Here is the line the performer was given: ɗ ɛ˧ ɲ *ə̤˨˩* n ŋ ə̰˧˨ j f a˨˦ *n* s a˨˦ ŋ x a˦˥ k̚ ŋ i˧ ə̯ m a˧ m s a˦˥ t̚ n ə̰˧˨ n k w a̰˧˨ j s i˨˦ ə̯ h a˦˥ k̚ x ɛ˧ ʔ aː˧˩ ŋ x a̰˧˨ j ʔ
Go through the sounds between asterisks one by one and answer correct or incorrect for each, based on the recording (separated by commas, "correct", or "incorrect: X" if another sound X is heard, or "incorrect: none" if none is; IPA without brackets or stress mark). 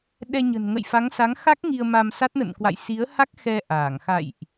correct, incorrect: ŋ